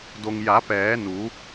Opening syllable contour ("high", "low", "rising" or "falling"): low